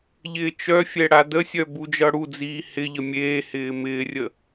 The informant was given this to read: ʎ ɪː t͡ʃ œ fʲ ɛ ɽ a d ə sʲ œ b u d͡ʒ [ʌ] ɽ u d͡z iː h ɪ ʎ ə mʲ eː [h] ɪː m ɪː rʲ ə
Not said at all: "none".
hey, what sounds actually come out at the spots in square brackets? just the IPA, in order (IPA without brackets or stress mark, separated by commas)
ʌ, h